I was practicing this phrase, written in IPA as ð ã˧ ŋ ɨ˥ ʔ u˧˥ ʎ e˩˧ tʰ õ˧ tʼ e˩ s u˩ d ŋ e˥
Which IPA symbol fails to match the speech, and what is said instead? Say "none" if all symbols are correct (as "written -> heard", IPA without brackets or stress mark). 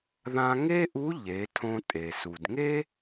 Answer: ɨ˥ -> e˥